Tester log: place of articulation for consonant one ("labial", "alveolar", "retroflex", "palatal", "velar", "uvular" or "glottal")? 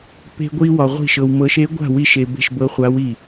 labial